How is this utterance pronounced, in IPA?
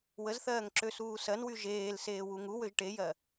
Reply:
w ə z θ ɜː ŋ ǁ ø s uː s ɜ n w y ʒ eː l s eː w u ŋ u w ø ʒ ʈ e j ɜ

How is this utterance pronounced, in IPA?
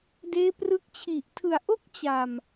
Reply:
d eː˦˥ p r ɯ˦˥ k̚ t͡ɕʰ i˨˩ ʔ tʰ ɯ˨˩ a̯ ʔ o˥˩ k̚ t͡ɕ a˨˩ m

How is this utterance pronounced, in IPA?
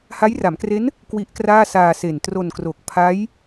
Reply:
h a˦˥ j r a˩˦ m k r e˦˥ n | k w i˦˥ ʔ k r aː˥˩ s aː˧ s e˨˩ n t r o˧ n k r o˨˩ k̚ pʰ a˦˥ j

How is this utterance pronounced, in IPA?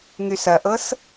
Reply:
ŋ y s ɐ ʔ ɤ s

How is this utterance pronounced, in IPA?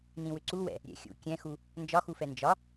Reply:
n ĩ w ʏ ǀ u w ɛ̰ | ɾʲ ɛ̰ xʲ ṵ kʲ ɛ̃ x u | n d͡ʒ ɒ x u f ɛ n d͡ʒ ɒ

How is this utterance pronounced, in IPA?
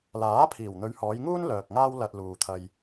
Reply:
l aː˨˥ pʰ iː˨˩ w n̪ ɵ˨˧ ɥ h ɔː˨˧ j ŋ uː˥ n l œː˨ k̚ ŋ aː˥ w l ɐ˧ t̚ l uː˨ t̪ʰ ɐ˧ j

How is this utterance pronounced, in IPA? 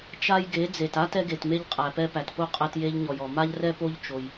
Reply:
t͡ʃ a˦ j ɡ e˨˦ d͡z e˨ t a˦ t ɛ˦ ɡ e˨ t m e˦ ʎ qʼ æ˨ p ɛ˦ p æ˨ t p o˦ qʼ ɛ˦ t j e˦ ʎ ɲ ɔ˨ j ɔ˨ m a˦ ʎ r ɛ˦ p o˦ ʎ t͡ʃ o˦ j

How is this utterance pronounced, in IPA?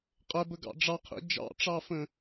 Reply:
qʼ ɛ b ə ɡ ɑ̰ ɖ͡ʐ ɑ qʰ ḭ d͡ʒ ɑ̰ ʈ͡ʂ ɑ f ə̃

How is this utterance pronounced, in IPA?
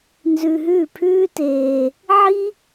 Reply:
n z ʉ˧ ɦ ʉː˥˩ pʰ ʉː˥ t eː˧ | ʕ i˥

